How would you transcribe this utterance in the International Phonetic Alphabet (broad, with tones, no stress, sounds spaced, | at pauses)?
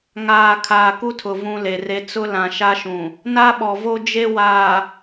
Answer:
ŋ aː˨ kʰ aː˨ k u˦ tʰ ʊ˨ v ũ˦ l e˨ r e˦ t͡s ʊ˦ l ã˨ ʃ a˦ ʃ ũ˨ | n a˦ ɓ ɔ˨ v o˦ d͡ʒ e˦ w aː˨